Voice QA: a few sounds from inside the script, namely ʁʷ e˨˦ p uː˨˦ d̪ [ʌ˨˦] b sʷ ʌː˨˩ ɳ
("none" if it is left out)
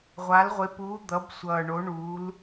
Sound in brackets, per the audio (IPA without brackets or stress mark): ʌ˨˦